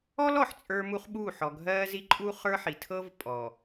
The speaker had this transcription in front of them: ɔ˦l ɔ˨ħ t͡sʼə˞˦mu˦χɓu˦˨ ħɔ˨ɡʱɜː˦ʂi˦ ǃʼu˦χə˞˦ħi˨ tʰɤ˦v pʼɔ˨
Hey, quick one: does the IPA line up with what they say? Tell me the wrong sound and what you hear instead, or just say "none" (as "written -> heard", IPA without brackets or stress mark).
ʂ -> z